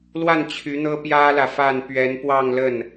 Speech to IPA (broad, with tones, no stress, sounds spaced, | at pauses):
l w a˥˩ n t͡ɕʰ y˧˥ n̪ ɤ˥ p j ä˥ l ä˨ f a˥˩ n p ɥ ɛ˧˥ n p w ɑ˥˧ ŋ l ə˥˩ n